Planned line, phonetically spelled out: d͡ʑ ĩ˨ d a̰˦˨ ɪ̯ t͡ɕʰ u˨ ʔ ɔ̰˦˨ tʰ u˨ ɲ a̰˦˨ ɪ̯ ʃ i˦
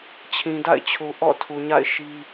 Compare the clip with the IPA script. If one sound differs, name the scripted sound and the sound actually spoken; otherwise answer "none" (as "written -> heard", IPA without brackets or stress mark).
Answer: d͡ʑ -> t͡ɕʰ